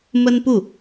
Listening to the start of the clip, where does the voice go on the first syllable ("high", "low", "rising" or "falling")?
high